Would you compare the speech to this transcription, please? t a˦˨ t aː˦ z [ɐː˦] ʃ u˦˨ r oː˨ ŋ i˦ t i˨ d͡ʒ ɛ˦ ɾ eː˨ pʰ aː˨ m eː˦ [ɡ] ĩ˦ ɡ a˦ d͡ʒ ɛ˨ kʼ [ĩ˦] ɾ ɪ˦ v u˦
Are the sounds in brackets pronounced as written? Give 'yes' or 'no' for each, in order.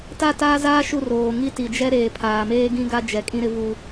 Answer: no, yes, yes

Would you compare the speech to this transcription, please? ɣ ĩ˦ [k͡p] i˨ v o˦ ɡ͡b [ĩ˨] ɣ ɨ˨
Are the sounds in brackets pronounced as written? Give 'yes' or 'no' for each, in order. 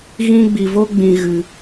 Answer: no, yes

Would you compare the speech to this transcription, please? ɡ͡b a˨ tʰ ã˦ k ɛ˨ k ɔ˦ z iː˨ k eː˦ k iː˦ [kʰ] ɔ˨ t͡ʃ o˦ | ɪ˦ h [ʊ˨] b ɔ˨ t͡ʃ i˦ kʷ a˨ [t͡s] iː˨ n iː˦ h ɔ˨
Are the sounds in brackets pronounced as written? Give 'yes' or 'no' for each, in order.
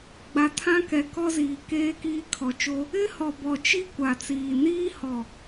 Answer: yes, no, yes

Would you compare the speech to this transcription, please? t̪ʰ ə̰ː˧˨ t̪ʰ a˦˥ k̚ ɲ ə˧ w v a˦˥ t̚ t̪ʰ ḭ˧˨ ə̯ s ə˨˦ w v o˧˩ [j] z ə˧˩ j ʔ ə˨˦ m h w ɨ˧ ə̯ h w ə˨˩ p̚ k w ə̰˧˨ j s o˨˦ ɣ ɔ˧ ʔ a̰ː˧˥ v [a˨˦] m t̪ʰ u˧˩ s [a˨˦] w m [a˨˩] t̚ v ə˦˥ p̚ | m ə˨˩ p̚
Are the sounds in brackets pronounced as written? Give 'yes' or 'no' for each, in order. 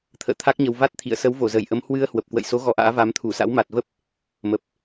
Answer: no, yes, no, yes

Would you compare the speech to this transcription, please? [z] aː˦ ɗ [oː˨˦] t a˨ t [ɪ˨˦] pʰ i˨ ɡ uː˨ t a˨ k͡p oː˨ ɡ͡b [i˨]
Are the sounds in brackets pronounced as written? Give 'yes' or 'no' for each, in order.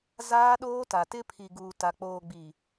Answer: yes, no, no, yes

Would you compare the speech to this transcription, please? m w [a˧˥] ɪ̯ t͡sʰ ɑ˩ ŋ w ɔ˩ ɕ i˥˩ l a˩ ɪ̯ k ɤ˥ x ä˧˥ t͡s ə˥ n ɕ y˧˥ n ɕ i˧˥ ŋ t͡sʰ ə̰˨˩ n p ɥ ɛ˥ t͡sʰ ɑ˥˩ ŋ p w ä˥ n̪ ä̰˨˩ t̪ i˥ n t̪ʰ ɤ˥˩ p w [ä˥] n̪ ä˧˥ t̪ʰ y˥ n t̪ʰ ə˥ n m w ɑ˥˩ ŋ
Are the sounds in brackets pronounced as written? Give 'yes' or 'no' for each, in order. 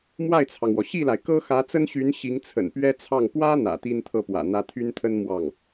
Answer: no, no

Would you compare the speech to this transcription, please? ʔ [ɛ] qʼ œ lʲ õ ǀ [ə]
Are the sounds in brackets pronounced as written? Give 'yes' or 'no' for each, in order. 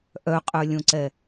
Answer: no, no

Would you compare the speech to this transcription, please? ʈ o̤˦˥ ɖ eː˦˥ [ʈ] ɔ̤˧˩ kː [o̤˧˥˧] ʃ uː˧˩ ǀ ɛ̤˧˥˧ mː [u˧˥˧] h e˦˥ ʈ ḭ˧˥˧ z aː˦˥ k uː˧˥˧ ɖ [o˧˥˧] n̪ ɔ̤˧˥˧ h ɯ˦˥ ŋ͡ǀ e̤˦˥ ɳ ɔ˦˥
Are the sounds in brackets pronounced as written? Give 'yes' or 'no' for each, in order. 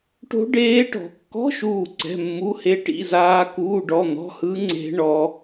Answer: yes, no, yes, no

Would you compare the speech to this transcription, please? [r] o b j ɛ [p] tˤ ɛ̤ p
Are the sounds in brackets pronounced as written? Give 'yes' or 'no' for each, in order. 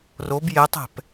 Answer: yes, no

